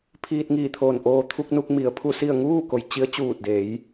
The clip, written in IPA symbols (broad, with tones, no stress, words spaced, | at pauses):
pʰiː˧t̚ŋiː˧˩t̪ʰoː˧˩n ʔoː˧ t̪ʰu˧k̚nu˧k̚ mi˩ə̯pʰu˥˨si˥˨ə̯ ŋuː˥˨ko˩j t͡ɕi˧˥ə̯ t͡ɕuː˧˩t̚de˩˧j